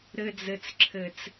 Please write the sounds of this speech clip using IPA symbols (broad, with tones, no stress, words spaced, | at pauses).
ɾɘ˨d͡zɘ˨t͡sǁʰɘ˨t͡s